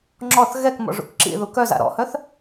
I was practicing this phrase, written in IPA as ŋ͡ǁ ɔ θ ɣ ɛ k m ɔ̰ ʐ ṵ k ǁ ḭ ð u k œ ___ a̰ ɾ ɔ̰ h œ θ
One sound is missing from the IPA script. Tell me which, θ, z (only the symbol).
z